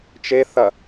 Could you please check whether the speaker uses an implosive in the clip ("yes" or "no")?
no